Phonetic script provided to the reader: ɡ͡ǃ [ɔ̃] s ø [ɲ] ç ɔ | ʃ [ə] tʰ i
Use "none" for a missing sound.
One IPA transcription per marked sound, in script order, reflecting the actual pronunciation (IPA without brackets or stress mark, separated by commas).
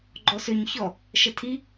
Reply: ɔ, ɲ, ə